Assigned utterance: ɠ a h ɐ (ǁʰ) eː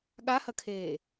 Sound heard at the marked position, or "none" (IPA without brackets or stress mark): kʰ